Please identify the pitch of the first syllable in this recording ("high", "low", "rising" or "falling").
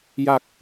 low